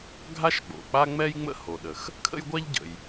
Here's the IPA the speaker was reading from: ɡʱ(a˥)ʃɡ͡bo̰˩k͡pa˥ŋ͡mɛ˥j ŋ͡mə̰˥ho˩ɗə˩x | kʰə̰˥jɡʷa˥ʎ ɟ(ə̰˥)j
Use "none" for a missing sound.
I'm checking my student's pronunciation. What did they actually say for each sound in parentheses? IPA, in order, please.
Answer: a˥, ə̰˩

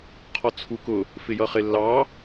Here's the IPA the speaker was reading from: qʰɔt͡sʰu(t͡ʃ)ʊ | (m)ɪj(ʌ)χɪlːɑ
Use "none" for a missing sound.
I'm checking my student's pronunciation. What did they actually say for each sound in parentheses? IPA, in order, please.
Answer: k, f, ʌ

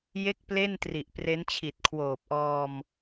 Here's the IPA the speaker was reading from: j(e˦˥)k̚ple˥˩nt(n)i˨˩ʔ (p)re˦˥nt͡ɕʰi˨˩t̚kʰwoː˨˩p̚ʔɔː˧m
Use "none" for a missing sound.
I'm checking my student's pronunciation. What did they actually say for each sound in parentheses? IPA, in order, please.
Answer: e˥˩, r, p

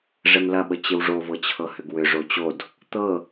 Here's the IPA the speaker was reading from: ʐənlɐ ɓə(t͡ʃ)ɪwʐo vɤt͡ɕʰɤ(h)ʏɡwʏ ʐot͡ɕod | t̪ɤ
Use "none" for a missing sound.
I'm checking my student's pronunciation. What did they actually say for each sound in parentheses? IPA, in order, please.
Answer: t͡ɕ, h

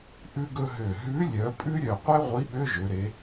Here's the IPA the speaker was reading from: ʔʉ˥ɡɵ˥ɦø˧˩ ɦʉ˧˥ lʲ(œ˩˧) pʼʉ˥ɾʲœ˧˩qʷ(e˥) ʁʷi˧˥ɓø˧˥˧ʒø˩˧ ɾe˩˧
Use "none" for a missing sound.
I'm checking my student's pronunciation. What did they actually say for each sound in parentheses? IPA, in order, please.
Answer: œ˩˧, e˥

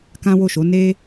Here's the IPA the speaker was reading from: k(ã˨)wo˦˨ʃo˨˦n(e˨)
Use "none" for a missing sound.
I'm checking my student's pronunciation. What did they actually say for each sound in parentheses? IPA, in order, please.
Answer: ã˦, e˦

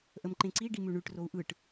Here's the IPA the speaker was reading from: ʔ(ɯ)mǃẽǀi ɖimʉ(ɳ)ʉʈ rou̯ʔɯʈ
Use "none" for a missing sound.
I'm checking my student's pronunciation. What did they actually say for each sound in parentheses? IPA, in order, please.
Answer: ə, ɳ

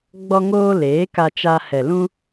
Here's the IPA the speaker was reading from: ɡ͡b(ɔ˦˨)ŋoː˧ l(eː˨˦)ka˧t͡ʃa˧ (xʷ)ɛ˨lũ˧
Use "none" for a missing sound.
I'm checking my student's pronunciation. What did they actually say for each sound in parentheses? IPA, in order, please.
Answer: ɔ˧, eː˨˦, h

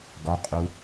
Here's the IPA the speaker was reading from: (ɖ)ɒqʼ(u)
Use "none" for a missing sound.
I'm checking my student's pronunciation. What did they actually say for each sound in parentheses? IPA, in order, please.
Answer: ɡ, u

